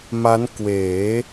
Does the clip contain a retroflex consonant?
no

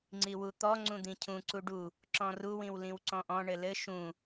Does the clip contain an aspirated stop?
yes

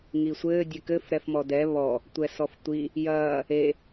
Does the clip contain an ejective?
no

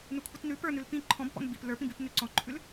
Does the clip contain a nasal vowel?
yes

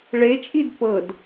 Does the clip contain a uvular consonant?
no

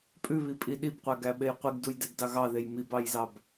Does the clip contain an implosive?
yes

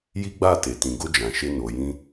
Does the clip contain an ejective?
no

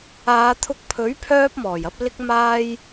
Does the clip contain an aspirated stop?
yes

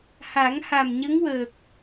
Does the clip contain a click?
no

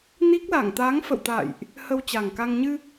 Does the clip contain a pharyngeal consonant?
no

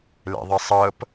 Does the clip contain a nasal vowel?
no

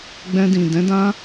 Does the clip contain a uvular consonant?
no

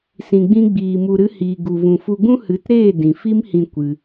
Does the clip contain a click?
no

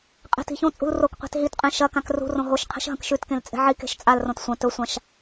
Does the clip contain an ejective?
yes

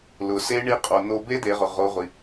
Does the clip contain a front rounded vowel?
no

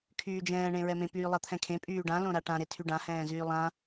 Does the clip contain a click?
no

